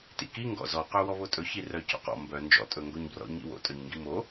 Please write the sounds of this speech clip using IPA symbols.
t ḭ k i ŋ ɡ ɔ̰ z ɔ q œ w ɔ β o tʼ ɵ ç i r œ c o̰ q ɔ̰ m b œ n d͡ʒ ɔ̰ tʼ ɵ ŋ ɡ o ɲ b r ɔ̰ ɲ ḭ w o̰ tʼ œ ɲ ŋ ɡ i m o

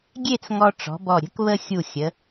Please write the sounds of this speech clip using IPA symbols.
ɡʲ e˥˧ t͡s ŋ ɔ˧ ʈ͡ʂ ɔ̤˩˧ b ɔ˧˩ ɾʲ ə̤˥ k β ə˥ xʲ u˧˩ xʲ ə˩˧

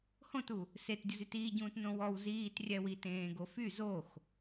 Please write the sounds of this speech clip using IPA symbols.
h õ t u | s e t dʲ ə z y t iː ɟ ũː t n õ w ɔ w z iː t rʲ ɛ w i t ẽː ɡ o f y z o x

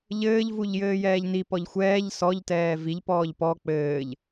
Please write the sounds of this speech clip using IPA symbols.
ʎ ɘː ʎ v u ʎ j ɘː j ɛː ʎ n i p ɔ ʎ xʷ ɛː ʎ s ɔ ʎ t ɛː v i ʎ p ɔː ʎ p ɔ k͡p ɘː ʎ

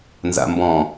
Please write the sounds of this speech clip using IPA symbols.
n z a̰ m b ɔ̃

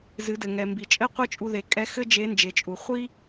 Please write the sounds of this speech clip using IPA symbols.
z ɨ˩˧ d ɘ˩ ŋ ɛ˩ m b i˩ t͡ʃʼ ɘ˥ qʷ ɨ˥ t͡ʃʼ u˧ ð e˩˧ kʼ ɛ˧˥ x ɘ˥ d͡ʒ e˧˥ n d͡ʒ e˩˧ t͡ʃʼ u˩ χʷ i˥

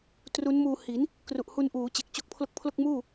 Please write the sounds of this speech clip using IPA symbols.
t r u˦˥ n m uː˧ h i˩˦ n | k r u˨˩ ʔ h u˧ n ʔ uː˩˦ t͡ɕ e˨˩ k̚ t͡ɕ o˦˥ k̚ pʰ l o˦˥ k̚ pʰ l o˥˩ k̚ m uː˥˩

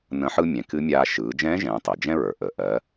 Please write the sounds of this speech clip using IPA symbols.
n ə̃˧˥ ħ ɯ˥ mʲ ɛ̃˩˧ k ɨ˧˥ mʲ aː˧ ʃ ɯː˩˧ d͡ʒ ɛ̃ː˧˥ ʒ ɛ̃ː˩˧ tˤ ɛ˩ d͡ʒ ɛ̃˥ ɹ ə˞˩ ʔ ə˩˧ ʔ ɜ˩˧

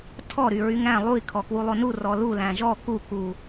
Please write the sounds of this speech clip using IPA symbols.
tʰ ɔ ɾ y ɹ y ŋ æ̃ lˠ u i̯ kʰ ɔ k w u lˠ o n u r ɔ l u l æ̃ ʒ ɔ k u k u

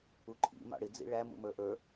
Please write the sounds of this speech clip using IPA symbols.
u ǃʰ ḭ m ɑ̰ ɽ ɪ d͡z ḭ ɭ æ m ṵ m ə˞ ʔ ə˞

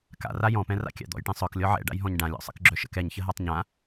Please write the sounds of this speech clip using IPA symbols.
k a̰ r a j ɔ̃ p ɛ̃ r a̰ kʲ a̰ d̪ ɔ̰ j ʈ ɛ̃ sˤ œ k lʲ ɔ ʕ ɛ̰ ɖ a̰ j ɦ ɔ̃ ɲ ɖ ã lʲ ɔ̰ sˤ ə̰ k ɡ͡ǁ œ ʃ ə̰ k ɛ ɲ ç ə ɦ a tˤ ɲ ã

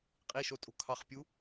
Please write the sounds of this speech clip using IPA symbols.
qʼ i ʃ o tʼ o̤ kʰ ɑ χ pʲ u

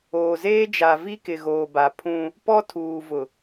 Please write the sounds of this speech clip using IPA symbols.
oː˨ z eː˦ d͡ʒ a˨ v i˦ k ɪ˨ ɣ oː˨ b a˨ pʰ ũ˦ | p ɔ˦ tʰ uː˨ v ʊ˨

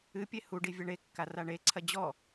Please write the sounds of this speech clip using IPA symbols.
ɨ pʲ e h u ɖ i vʲ ɐ ɳ e kː a r a ɳ e ǀʰ ɐ d͡ʑ ɔ

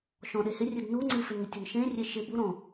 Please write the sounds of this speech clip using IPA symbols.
ʃ ɔ̃ ɗ e h ɪ rʲ ɨ d n u ŋ͡ǀ ɨ f ɪ n ŋ ɪ tʲ ʊ n ʃ ẽ rʲ e ʃ ɪ b u ɾ ɔ̃

